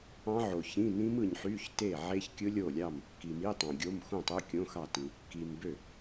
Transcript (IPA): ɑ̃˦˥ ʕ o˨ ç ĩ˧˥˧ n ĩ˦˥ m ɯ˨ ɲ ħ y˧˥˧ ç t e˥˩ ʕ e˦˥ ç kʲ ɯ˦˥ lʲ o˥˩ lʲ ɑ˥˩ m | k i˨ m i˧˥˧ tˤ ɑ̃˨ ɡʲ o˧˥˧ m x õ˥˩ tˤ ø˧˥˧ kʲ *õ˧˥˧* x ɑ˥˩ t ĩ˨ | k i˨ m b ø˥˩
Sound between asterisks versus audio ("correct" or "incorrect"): correct